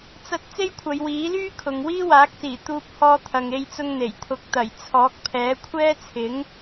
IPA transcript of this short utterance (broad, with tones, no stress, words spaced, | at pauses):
t͡sɐ˥t̚ t͡se˥jkʷʰɐ˨˧jwiː˨˥lyː˥ kʰʊ˨˧ŋ wiː˥waː˨˥k̚siː˨˩ t̪uː˧p̚hɔː˧ t̪ʰɐ˨ŋe˧jt͡sʊ˧ŋ n̪e˨˩jt̪ʰʊ˧k̚ t̪ɐ˨˩jt͡sʰɔː˨˥k̚pʰɛː˨˥ kʷʰɛː˥t͡sʰɪ˨˥ŋ